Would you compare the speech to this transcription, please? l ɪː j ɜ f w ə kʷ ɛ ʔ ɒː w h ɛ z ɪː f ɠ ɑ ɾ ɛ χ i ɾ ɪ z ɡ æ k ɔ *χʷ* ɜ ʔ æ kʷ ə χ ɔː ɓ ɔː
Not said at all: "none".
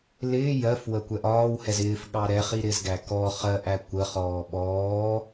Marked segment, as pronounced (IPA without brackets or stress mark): χ